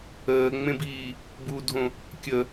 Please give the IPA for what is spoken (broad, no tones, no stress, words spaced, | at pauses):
əːŋ͡mẽbiː | budʱõ | kʲə